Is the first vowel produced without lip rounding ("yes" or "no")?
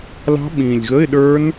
yes